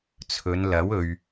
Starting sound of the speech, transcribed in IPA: t͡sʰ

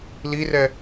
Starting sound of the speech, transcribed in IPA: l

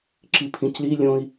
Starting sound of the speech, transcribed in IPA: ǁ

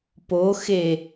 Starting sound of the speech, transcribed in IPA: p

